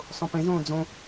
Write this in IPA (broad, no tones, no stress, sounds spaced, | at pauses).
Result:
sˤ õ p ẽ z õː d͡z õ